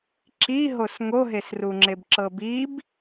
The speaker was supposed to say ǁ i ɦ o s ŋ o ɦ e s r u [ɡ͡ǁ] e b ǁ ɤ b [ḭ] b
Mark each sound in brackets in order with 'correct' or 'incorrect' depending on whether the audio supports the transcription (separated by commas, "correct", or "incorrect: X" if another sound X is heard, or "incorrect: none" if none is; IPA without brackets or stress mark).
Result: incorrect: ŋ͡ǁ, incorrect: i